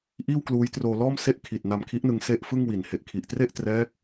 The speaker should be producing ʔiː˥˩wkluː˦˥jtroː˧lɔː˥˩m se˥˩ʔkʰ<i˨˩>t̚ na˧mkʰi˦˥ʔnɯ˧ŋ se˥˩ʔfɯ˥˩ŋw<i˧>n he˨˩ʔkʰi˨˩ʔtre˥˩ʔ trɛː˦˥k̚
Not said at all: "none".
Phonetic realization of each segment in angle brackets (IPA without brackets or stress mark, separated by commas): i˨˩, i˨˩